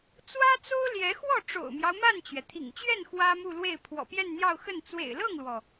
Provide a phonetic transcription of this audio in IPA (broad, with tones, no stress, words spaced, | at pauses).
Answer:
t͡swä˥t͡so˥ʊ̯ljɛ˧˥ xwɔ˥˩ʈ͡ʂo̰˨˩ʊ̯mjɑ˦ʊ̯ ma˥˩nt͡ɕɥɛ˩t̪ʰḭ˨˩ŋt͡ɕɥɛ˥˩n xwä˥mu˥˧lwe˥˩ɪ̯ pʰwɔ̰˨˩pjɛ˥˧nn̪jɑ˥˧ʊ̯xə˥˩n t͡swḛ˨˩ɪ̯lɤ˥˩ŋlwɔ˩